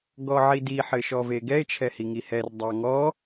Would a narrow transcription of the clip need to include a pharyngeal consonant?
yes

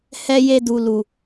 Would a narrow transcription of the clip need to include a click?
no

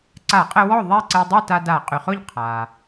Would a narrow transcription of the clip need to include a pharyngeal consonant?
no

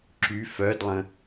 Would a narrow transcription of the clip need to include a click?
yes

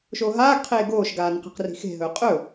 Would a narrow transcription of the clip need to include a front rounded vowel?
no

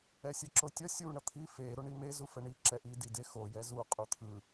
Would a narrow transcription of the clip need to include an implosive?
no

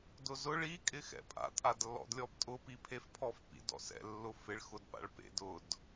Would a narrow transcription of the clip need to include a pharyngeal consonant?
no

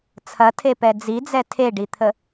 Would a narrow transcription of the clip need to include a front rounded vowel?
no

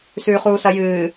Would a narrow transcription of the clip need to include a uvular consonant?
yes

